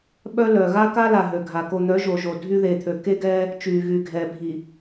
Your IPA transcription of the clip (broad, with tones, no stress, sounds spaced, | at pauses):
ɓ œ˦ l œ˨ ɣ a˦ k a˦ l a˨ ɦ ø˨ ɡʱ a˨ k o˨ n̪ œ˨˦ ʒ o˨ ʒ o˨ dʱ y˦ ð e˨ t̪ʰ ø˨ k e˦ ɡ ɛː˦ | t͡ʃ yː˨ ɣ y˨ ɡʱ ɛː˨ bʱ i˨